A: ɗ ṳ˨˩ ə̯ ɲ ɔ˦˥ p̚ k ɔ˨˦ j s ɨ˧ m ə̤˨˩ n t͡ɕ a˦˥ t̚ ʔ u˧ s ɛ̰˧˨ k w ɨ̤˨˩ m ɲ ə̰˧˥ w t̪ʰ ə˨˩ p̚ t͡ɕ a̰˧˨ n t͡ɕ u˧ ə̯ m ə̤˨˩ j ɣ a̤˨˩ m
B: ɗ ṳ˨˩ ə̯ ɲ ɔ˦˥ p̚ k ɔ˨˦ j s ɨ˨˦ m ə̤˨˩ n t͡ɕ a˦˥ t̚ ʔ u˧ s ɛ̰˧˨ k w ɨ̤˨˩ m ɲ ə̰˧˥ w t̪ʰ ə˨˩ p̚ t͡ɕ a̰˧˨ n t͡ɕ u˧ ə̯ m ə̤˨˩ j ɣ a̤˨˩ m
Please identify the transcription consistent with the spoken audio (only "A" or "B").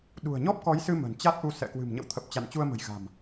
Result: A